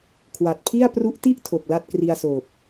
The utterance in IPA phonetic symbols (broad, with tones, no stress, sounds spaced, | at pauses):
kʰ w a˨˩ t̚ pʰ i˥˩ a̯ p r u˦˥ ʔ t i˥˩ ʔ tʰ o˨˩ k̚ l a˥˩ t̚ k r i˧ a̯ s oː˨˩ p̚